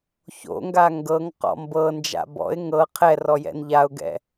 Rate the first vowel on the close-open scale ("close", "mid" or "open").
mid